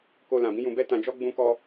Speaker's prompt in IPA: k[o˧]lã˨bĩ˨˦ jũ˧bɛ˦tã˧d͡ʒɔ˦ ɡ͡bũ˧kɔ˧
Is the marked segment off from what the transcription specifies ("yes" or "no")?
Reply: no